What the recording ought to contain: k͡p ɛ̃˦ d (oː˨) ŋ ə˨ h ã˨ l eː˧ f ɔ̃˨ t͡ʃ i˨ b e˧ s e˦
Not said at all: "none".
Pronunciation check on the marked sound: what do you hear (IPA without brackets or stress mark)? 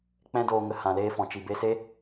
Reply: oː˧